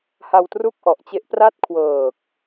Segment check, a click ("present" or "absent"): absent